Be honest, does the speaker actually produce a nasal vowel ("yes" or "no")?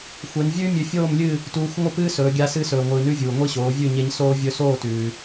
no